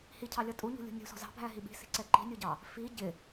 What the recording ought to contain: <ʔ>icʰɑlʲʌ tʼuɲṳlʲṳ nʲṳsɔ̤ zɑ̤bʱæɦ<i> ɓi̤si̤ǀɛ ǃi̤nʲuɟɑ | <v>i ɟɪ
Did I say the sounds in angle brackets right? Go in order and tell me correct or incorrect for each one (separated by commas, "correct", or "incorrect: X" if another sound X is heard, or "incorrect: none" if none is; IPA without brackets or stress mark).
incorrect: h, correct, incorrect: f